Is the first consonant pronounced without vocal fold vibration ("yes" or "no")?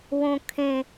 no